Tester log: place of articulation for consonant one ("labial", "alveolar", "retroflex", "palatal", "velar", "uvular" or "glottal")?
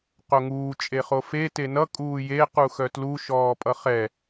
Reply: uvular